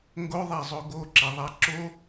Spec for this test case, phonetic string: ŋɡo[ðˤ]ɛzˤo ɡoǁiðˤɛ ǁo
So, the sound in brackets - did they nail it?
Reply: yes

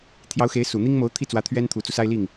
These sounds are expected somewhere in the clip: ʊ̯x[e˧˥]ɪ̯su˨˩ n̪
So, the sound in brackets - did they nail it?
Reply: yes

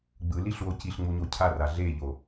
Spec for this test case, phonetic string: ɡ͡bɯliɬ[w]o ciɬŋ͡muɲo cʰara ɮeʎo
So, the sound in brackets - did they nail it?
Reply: yes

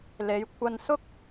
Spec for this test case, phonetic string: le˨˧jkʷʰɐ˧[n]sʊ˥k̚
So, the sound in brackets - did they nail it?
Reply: yes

